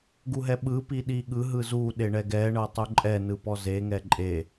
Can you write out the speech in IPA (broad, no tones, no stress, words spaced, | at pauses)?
ɡuɦɛɓɯ piɗiɠɯ ɦɯzu ɗeɳɛɡɛ ɳɤtˤuǃʼɛ nɯpɔze ŋɛǃʼe